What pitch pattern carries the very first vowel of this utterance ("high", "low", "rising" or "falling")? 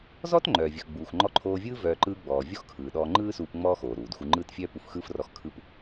high